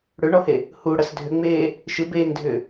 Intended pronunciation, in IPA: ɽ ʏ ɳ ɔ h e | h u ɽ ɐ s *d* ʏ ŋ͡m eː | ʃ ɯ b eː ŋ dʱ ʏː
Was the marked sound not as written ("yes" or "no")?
yes